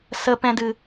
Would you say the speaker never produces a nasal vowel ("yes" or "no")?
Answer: no